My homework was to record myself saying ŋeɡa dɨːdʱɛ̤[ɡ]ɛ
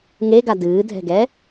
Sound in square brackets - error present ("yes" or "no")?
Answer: no